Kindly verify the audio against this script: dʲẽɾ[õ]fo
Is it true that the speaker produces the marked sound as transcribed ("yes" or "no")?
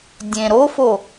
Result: no